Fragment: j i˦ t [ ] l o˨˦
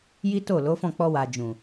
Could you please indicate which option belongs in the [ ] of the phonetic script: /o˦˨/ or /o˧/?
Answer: o˦˨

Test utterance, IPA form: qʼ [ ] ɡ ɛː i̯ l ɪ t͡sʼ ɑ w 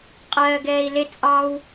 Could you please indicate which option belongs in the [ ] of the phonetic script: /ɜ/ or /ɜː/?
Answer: ɜː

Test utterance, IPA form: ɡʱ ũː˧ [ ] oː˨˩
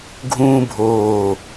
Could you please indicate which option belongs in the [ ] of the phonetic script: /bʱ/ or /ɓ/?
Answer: bʱ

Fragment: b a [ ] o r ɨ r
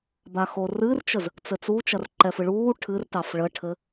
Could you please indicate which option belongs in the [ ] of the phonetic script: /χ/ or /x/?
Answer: x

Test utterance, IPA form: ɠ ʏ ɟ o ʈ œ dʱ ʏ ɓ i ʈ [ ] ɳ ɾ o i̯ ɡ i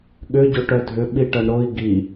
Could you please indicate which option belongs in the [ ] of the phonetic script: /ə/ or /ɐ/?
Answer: ɐ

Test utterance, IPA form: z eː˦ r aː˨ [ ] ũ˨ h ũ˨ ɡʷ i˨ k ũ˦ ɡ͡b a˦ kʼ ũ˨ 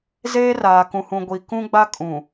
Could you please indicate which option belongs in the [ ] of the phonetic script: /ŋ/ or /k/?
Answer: k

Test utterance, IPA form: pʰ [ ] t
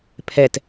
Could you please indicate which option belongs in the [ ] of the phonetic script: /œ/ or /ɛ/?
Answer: ɛ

